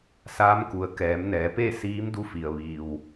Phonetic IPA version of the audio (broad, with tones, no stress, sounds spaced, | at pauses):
s aː˧˥ m k u˩ ə̯ k ɛː˩˧ m n ɛː˩˧ p e˥˨ s iː˧˥ m d u˧ f i˩ ə̯ ʋ iː˩ w